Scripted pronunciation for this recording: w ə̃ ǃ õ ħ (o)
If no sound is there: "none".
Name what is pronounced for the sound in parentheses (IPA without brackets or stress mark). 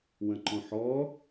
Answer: ɔ